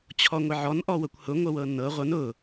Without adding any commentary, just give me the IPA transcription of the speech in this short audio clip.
t͡ɕʰ ɔ ŋʷ ɪ ʕ ɔ n ʔ ɔ w ɤ kʷ h ʊ ŋʷ ɤ w ɤ nː ɤ ʁʷ ɤ n ʊ

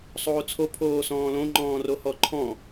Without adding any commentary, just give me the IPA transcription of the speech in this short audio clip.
sˤ oː t͡sʰ o pʰ oː s ɔ̃ː l õ ŋ͡ǃ ɔ̃ː r o h ɔ ǃʰ ɔ̃

